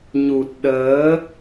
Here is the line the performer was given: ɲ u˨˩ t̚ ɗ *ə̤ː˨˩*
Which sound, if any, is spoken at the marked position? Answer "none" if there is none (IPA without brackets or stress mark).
əː˨˦